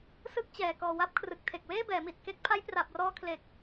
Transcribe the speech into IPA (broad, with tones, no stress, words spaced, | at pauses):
sɯ˥˩k̚t͡ɕɛː˨˩ kɔː˨˩wa˦˥p̚kʰrɯ˨˩k̚ tʰe˨˩k̚weː˥˩bɛː˩˦mi˨˩t̚ ke˦˥k̚ pʰa˦˥jpra˨˩p̚rɔː˧ kʰle˨˩k̚